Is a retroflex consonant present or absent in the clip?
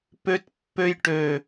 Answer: present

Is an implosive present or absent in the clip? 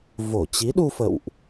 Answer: present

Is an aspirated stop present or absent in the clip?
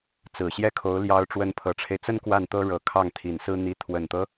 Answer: present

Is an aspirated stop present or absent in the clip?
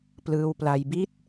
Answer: absent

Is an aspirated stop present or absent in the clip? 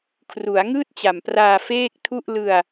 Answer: present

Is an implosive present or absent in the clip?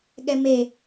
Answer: present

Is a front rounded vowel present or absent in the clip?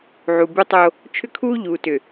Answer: present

